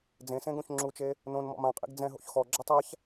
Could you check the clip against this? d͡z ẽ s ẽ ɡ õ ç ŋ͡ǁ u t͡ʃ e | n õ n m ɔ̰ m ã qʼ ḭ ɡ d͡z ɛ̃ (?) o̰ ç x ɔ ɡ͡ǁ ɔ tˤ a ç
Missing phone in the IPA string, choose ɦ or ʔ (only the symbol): ɦ